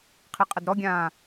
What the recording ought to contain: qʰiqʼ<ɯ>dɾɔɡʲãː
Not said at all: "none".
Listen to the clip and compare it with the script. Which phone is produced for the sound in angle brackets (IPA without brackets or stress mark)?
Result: ə